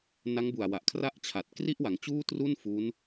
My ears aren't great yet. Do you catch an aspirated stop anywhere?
yes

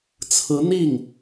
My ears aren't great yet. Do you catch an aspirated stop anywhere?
yes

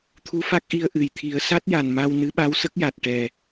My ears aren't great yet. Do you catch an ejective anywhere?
no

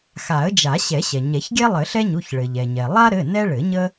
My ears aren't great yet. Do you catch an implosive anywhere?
no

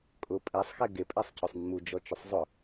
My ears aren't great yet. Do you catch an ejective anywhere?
yes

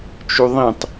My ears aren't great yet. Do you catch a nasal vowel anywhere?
yes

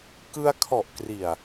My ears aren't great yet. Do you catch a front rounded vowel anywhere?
no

